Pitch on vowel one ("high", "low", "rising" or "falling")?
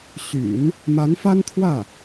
low